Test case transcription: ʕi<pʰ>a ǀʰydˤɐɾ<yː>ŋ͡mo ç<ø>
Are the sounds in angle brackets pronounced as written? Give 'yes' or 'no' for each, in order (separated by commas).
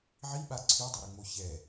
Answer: no, no, no